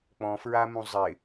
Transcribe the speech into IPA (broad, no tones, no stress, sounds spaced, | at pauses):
k͡p ɔ̃ f ɹ a m ũ zˤ ɪ